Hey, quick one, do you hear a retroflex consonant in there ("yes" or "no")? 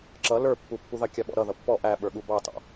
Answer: no